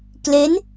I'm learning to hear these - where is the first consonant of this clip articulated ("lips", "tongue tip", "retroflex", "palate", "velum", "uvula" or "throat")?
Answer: velum